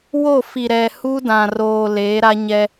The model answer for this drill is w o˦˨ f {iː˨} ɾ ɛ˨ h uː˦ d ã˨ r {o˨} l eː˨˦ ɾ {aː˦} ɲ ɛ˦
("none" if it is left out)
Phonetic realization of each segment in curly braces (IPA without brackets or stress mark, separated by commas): i˨, oː˨, a˦